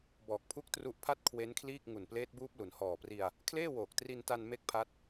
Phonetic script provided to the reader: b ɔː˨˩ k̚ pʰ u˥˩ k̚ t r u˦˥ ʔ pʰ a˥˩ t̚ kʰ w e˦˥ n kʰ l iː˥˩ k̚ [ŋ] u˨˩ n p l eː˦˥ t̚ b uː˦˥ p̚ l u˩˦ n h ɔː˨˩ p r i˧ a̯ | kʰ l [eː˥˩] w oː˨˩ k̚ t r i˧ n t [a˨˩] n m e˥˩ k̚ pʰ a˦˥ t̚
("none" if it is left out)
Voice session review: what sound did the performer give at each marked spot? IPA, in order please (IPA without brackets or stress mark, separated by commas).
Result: ŋ, eː˥˩, a˧